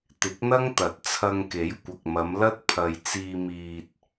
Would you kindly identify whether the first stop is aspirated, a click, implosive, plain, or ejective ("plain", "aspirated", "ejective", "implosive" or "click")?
plain